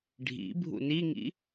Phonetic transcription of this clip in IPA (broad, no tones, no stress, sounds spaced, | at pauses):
ɖʱ ḭ bʱ ṵ n i ŋ ḭ